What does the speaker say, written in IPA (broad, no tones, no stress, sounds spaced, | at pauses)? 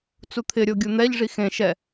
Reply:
t͡s u t̪ʰ ɪ ɾʲ o ɡʲ u n̪ ɛ ʎ ʐ i x ẽ ʃ ɛ